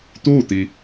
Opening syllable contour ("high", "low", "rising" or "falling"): falling